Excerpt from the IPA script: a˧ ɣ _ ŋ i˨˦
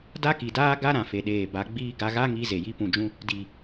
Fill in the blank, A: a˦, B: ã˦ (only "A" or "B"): A